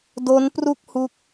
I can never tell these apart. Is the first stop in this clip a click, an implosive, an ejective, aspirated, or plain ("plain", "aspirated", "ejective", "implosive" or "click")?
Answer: plain